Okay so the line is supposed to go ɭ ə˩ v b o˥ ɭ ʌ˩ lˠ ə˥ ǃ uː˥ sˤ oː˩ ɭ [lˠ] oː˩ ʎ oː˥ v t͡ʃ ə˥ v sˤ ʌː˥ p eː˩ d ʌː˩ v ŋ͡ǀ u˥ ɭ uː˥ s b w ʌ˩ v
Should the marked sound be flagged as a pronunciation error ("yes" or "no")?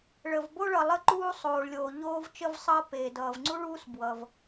yes